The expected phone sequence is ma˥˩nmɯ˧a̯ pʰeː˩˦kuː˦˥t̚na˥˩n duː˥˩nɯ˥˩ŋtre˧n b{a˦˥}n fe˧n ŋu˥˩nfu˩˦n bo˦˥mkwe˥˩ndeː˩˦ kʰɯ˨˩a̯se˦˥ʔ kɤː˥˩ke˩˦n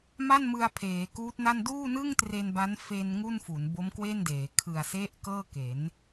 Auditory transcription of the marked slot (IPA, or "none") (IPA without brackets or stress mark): a˦˥